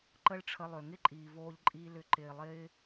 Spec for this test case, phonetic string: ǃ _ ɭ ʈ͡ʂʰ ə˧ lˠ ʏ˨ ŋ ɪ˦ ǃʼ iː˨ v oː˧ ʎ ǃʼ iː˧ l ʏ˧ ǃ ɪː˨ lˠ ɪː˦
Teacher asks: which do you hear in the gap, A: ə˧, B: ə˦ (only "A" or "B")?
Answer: B